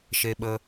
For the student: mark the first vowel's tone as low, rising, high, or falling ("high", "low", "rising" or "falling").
high